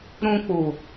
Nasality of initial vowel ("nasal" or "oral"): nasal